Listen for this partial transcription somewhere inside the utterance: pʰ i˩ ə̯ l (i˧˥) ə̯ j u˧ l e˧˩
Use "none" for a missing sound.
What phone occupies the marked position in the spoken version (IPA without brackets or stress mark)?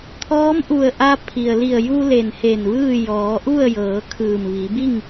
i˧˩